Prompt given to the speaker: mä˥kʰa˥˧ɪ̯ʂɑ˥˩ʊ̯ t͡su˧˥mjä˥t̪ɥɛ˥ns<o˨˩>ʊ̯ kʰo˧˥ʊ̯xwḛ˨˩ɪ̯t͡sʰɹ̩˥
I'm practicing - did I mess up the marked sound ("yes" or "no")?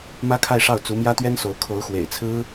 yes